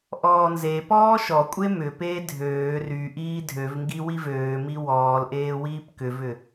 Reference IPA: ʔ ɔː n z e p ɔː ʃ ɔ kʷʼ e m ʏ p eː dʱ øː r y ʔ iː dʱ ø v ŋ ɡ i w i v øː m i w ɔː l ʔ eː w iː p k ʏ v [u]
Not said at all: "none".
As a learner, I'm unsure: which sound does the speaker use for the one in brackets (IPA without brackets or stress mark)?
ʏ